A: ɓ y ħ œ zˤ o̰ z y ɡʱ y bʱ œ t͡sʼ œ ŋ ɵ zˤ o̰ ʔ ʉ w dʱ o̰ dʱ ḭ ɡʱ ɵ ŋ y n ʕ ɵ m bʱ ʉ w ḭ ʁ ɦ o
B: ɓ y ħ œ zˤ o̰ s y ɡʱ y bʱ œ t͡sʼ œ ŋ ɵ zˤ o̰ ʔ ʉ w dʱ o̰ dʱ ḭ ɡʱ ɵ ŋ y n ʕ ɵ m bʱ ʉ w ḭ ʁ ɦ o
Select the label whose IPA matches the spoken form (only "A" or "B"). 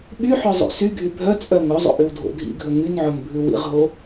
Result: B